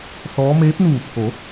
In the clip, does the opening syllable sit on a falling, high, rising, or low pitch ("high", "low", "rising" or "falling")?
rising